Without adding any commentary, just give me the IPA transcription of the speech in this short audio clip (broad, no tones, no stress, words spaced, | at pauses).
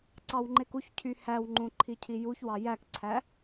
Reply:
ǀɑwŋ͡ǃekuçcʰy hæwŋ͡ǃũ ǃʰicʰijuçwɑ jækǀʰæ